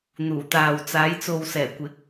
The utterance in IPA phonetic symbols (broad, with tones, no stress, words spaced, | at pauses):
n̪uː˨˩t̪aː˨wt͡saː˨˧j t͡so˨wsɛː˨˩kʷɪ˨˥k̚